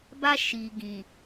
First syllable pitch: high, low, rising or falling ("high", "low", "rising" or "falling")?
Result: high